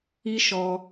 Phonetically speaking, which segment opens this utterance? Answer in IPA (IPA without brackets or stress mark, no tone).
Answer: i